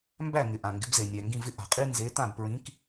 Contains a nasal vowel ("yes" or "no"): yes